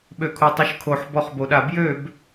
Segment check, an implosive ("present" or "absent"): present